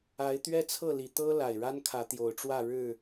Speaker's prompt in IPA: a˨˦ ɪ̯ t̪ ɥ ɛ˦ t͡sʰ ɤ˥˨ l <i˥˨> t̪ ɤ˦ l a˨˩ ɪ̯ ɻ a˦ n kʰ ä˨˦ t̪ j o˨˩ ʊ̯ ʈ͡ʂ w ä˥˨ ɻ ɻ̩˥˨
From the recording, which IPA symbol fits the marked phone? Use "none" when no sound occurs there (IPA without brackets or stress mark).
i˨˩